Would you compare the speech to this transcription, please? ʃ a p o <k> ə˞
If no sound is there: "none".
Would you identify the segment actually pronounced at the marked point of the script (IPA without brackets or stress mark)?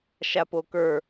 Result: k